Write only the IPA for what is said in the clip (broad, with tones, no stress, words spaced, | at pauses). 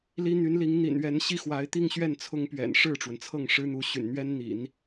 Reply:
li˥ n̪y˧˥nli˧˥ŋn̪ḭ˨˩nɥɛ˧˥n ɕi˥xwa˧˥ɪ̯t̪i˥˧ŋɕɥɛ˥˩n t͡sʰʊ˥ŋpɥɛ̰˨˩n ʂɻ̩˥˩ʈ͡ʂwə˩nt͡sʰɤ˥˩ŋ ʂɻ̩˥n̪u˧˥ɕy̰˨˩n n̪ɥɛ˥nn̪ḭ˨˩˦n